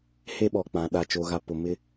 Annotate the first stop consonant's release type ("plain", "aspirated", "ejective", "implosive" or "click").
implosive